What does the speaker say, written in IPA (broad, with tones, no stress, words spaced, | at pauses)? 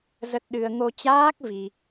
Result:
zə˦˥t̚ ɗɨ˧ə̯ ŋo˧t͡ɕaː˦˥k̚ vi˧